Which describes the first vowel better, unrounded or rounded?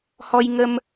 rounded